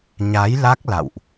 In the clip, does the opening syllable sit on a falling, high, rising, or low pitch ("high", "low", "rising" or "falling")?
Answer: rising